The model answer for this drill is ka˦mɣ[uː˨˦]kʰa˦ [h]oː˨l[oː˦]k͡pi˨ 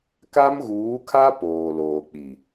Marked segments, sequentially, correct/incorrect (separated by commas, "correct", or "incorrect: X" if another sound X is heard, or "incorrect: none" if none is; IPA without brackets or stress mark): correct, incorrect: p, incorrect: oː˨